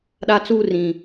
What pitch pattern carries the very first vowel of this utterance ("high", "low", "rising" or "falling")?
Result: high